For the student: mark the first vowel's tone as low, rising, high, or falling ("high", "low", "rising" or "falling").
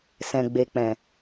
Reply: low